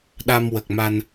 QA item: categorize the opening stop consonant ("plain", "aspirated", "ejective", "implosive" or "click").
implosive